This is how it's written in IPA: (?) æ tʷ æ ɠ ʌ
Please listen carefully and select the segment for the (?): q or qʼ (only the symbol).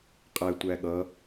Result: qʼ